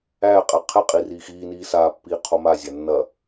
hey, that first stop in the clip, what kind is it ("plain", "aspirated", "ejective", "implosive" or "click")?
ejective